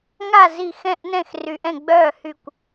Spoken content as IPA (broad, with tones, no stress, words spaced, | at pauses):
ŋa˥˨ zi˥˨ xɛ̃˥˨ʔnɛ̃˥˨x ry˧ʔɛ̃˥˨ɡ͡bœː˥˨ hy˥˨kʷ